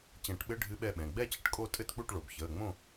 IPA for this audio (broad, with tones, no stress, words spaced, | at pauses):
t͡ɕɛ̃˨˩˦ʈɓɘ˧˥˧ ɖʱɨ˦˥ɓɛ˥˨ɓɛ̃˩˧˩ ɡ͡bɛ˥˨t͡ɕə˨˩˦ʈkʼo˥˨ tʼɘ˥˨tk͡pu˥˨ʈɭo˩˧˩b çəː˩˧˩ŋ͡mõ˥˨